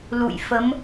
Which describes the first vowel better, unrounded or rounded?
rounded